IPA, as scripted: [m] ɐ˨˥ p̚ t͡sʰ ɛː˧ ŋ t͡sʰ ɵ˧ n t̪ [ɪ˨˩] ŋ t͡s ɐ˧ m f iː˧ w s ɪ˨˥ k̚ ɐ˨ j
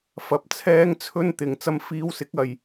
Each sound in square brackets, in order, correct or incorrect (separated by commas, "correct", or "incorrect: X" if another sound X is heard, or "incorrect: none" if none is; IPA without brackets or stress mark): incorrect: f, incorrect: ɪ˨